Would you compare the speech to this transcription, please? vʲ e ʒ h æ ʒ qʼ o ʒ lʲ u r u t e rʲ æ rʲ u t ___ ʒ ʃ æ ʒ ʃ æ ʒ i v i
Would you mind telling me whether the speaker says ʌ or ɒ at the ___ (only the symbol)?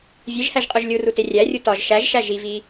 ɒ